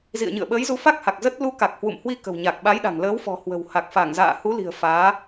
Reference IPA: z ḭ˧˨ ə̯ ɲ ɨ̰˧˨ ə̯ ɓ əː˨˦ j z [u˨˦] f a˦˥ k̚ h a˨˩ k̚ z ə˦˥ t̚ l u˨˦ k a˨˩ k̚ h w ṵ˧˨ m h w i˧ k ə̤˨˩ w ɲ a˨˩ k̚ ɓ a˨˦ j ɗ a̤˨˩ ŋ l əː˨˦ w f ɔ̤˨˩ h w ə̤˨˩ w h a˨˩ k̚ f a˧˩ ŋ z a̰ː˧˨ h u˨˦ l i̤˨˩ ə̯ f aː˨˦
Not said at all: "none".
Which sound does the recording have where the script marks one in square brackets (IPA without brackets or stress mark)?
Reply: u˨˦